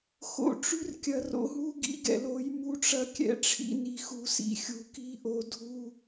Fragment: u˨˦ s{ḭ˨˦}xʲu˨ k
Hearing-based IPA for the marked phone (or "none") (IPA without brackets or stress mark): ḭ˨